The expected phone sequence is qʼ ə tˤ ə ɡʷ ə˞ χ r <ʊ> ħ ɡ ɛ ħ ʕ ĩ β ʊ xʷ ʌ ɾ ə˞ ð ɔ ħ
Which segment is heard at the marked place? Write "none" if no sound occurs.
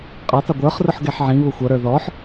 ʊ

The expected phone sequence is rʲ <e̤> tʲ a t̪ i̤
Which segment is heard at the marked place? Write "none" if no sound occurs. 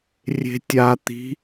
e̤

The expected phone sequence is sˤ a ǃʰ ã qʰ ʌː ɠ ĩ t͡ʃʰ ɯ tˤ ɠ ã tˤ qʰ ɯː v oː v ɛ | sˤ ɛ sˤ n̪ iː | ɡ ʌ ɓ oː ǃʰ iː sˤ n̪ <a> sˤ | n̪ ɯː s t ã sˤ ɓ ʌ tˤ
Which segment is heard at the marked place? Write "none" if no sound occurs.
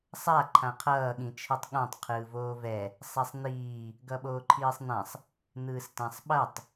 ã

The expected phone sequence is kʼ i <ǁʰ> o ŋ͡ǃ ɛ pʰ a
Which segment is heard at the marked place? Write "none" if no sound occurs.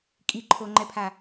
ǃʰ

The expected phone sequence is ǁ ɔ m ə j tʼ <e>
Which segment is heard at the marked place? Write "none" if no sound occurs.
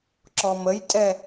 ɛ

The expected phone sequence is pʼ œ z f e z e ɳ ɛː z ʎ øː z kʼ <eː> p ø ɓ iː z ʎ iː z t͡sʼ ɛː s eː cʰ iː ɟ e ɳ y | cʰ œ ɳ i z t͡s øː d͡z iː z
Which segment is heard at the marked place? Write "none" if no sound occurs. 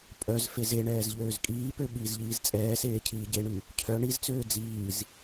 iː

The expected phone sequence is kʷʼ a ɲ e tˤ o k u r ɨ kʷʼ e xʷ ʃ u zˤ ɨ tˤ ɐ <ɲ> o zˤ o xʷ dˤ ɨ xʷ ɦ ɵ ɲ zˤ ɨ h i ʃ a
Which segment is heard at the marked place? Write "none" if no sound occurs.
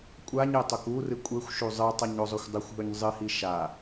ɲ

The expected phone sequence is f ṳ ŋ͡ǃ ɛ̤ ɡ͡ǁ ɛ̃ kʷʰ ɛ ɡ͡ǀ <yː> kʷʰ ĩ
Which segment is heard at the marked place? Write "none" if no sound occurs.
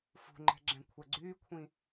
yː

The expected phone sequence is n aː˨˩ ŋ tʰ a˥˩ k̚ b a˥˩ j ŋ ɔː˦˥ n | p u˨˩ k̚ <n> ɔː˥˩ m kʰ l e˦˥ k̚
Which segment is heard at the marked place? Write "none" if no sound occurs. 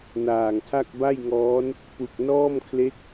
n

